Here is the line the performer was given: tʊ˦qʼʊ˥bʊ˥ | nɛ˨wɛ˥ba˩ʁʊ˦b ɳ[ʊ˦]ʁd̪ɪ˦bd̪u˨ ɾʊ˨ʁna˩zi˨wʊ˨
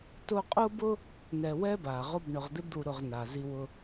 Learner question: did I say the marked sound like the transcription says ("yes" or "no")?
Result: no